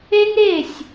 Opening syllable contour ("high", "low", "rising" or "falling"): high